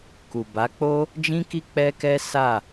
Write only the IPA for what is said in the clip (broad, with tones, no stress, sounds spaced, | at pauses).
k u˨ b a˨˦ k͡p o˦ | d͡ʒ ĩ˦ k i˦ k͡p ɛ˦ k ɛ˦ s a˦˨